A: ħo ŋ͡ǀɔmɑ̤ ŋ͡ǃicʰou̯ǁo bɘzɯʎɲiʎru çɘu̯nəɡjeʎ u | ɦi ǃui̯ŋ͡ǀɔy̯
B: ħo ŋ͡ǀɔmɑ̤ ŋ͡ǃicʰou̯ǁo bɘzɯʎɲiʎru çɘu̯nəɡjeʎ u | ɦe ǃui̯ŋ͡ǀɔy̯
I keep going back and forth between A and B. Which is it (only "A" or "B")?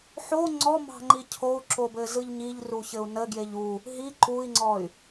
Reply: A